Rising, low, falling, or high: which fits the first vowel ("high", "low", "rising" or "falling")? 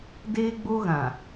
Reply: high